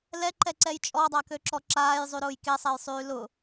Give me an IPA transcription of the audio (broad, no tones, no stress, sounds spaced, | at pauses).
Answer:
l ɛ ǃ ɛ ǀ ɛ j t͡ʃʼ ɔ dˤ a k ø ǁ ɔ ǁ aː j zˤ y ɾ ʊː j k e sˤ ɛ j sˤ yː l ʊ